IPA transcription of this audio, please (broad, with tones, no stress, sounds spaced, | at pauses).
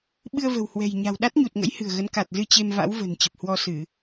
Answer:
ɓ ɨ˧ ə̯ v ə̤˨˩ w h w ɛ̤˨˩ j ɲ a̤˨˩ w ɗ a˦˥ t̚ ɲ u˨˩ t̚ ŋ ə̰˧˥ j h ɨ̤˨˩ ə̯ ɣ ə˨˦ n k a˨˩ t̚ z ɨ˧ t͡ɕ e˧ m v a̰˧˥ w v ə̤˨˩ n t͡ɕ ə˨˩ p̚ h w ɔ˧ s ɨ˧˩˨